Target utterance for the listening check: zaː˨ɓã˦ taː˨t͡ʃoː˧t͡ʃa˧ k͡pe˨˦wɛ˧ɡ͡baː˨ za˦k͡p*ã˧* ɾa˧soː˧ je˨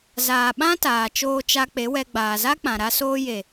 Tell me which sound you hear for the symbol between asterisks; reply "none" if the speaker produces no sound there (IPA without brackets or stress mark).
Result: ã˨